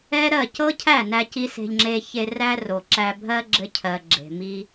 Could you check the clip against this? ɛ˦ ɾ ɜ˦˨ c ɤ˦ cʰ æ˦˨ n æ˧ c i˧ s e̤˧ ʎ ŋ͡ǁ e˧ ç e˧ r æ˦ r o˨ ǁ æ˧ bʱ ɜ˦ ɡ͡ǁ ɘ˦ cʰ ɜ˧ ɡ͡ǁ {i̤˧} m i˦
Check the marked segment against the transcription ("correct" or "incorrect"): incorrect